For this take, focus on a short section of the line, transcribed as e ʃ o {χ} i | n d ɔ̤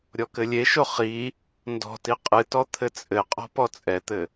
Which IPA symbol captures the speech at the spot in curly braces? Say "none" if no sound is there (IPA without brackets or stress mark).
χ